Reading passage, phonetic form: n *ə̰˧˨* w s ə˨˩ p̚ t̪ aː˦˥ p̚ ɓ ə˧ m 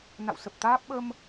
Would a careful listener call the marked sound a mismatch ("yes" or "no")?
yes